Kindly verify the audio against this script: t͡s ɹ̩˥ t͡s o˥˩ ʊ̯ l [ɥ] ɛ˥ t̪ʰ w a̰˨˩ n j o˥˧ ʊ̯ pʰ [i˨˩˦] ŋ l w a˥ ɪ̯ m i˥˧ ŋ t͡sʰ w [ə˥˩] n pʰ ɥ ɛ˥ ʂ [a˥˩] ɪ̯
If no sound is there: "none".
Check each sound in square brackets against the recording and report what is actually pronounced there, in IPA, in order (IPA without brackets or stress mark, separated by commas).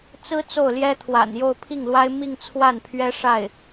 j, i˥˩, a˥˩, a˥˩